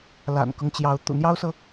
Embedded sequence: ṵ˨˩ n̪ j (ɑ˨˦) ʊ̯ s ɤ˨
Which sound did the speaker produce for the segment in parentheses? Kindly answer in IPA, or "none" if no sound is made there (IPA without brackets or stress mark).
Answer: ɑ˦